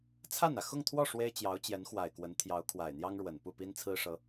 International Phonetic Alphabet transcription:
t͡sʰ a˥˩ n ä˩ x ʊ˥˧ ŋ t̪ʰ w ɔ˥˩ ʂ w e˥ ɪ̯ t͡ɕ j ɑ˧˥ ʊ̯ t͡ɕ j ɛ˧˥ n x w a˨˩ ɪ̯ k w ə˧˥ n t̪ʰ j ɑ˧˥ ʊ̯ kʰ w a˨˩ ɪ̯ n̪ j ɑ˥ ŋ ɻ w ə˨˩ n p u˥˩ p i˥ n t͡sʰ ɹ̩˥ ʂ ɤ˧˥

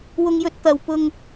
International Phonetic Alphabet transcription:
w ʊ˧ ŋ j ɵ˧ t̚ t̪ ɐ˨ w p ʊ˧ ŋ

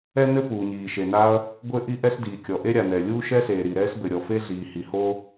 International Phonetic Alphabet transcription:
ɛ˥ n ɘ˥ p uː˩ ɲ iː˩ ʃ e˩ n a˥ ɐ̯ | ɡʷ ɘ˥ ʔ i˥ ʔ ɛ˥ s d iː˩ kʲ ɔ˩ ʔ e˥ ɾʲ a˩ n ɛ˩ lʲ uː˥ ʃ ɛ˥ s eː˩ ɾ i˩ ɾ ɛː˥ s b ɘ˩ ɾʲ ɔ˩ f e˥ ɮ iː˩ h i˩ h o˥

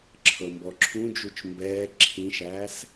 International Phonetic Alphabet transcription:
ǁʰ ɤ m b ɔ ǁʰ ũ d͡ʒ u t͡ʃ m b ɛː ǁʰ ĩ ʃ æː s

